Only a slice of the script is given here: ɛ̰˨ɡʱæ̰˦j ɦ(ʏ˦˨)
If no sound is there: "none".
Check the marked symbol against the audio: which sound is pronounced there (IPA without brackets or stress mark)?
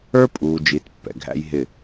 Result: ɪ˦˨